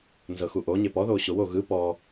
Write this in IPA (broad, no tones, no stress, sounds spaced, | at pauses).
n z ɤ x u ʔ o ɲ e p ɔ ð oː ɕ o w o ɣ ɯ p ɔ